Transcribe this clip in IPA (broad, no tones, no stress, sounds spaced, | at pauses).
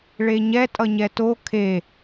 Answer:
ɭ e ɲ ɛ tʼ ʌ ɲ ɛ t o kʰ e